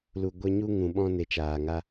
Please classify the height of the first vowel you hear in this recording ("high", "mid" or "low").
high